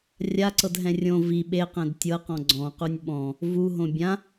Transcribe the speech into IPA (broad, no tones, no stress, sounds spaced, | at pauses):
rʲ a ǀ ɤ d ɦ ɛ̃ rʲ õ v i ɓ e q ɛ̃ d tʲ ɤ q ɔ̃ ɡ͡ǀ ɔ̃ q u nʲ ɓ ɔ̃ | v u ɦ õ bʲ ã